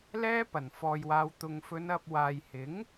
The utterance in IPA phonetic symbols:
lɛː˥pɐ˨˩nfɔː˨jwaː˨˧w t̪ʊ˨ŋfɵ˨˧n ɐ˨p̚ waː˨jhɪ˨˥ŋ

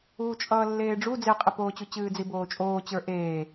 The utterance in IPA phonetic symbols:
uːt͡ʃʼʌːlːeːɖ͡ʐu d͡zeqʼɪpoːt͡ɕu t͡ɕɨːd͡ziboːt͡ʃʼoː t͡ɕə˞ʔeː

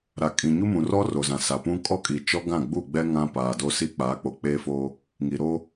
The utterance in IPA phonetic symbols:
ɾa˨ kʼĩ˨ɲu˦mũ˨rɔ˦ ro˨zã˨sa˨pũ˦ kʼɔ˦kʼi˨t͡ʃɔ˦ɡã˦˨ ɡ͡bu˦˨ɡ͡bɛ˦ ŋã˦ paː˨do˦si˦ k͡paː˨˦k͡po˨k͡peː˦foː˦ | ŋi˨ɾo˦

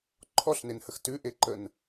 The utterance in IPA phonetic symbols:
ǃʰɔɬnenhəx tʉʔeǃən

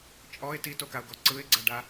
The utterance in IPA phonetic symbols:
t͡ʃʼɔɪ̯ titokaʊ̯ɡɔ ǀɯɪ̯ɡ͡ǀaɖa

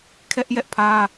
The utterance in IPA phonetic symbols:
kʰɛ˦ʔjɛ˦ʔpʰä˦

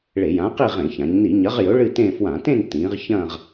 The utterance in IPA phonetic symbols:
ɭe˧˩˧jã˨˥qi˥˧ ʁẽ˧˩˧çã˩˧ɲ ni˧˩˧ɲɐ˨˥ʁjɵ˨˥ ɭɨ˥˧tẽ˥˧ fwã˧˩˧tẽ˥˧n tĩː˩˧ʁ çɐ̃ː˥˧ʁ

